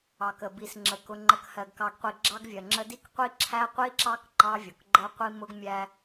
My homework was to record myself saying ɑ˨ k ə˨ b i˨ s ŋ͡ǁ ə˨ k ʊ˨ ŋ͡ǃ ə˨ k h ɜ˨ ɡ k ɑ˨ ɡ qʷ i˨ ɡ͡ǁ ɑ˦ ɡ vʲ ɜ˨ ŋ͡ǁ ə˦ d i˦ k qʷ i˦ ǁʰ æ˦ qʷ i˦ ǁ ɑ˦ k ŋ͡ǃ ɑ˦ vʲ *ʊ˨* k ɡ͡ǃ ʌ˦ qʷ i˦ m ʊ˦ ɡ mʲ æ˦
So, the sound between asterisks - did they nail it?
yes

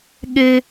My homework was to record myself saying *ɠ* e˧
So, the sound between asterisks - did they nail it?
yes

